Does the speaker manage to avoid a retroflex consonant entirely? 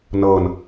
yes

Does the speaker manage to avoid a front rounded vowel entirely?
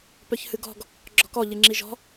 no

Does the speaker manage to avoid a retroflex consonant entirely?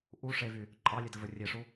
no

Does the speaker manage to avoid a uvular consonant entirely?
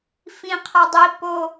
no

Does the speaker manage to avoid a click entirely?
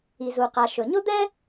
yes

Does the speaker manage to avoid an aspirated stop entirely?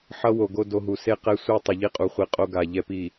yes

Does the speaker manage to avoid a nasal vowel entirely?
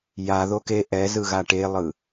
yes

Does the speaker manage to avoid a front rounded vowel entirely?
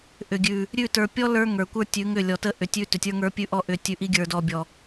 no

